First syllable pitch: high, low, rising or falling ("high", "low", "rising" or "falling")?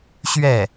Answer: falling